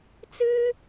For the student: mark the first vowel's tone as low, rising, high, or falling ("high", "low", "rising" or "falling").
high